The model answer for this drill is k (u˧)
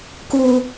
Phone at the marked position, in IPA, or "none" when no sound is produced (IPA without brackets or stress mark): u˧